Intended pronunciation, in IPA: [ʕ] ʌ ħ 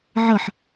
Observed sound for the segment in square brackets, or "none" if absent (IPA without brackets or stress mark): ʕ